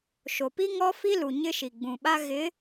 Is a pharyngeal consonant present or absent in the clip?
absent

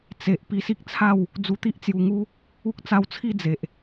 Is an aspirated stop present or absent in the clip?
present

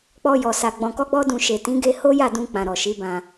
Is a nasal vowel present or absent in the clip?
present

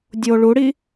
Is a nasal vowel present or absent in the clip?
absent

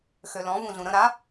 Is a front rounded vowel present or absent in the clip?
present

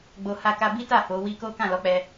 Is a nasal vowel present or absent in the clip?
present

